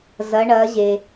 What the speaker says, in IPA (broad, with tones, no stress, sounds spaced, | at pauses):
z ɐ˩˧ ɳ ɐː˩˧ ʑ e˩